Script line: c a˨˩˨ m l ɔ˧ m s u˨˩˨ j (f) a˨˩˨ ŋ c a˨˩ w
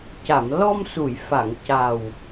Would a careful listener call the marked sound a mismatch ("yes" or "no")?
no